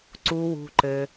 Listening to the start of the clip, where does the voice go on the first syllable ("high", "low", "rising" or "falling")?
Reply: high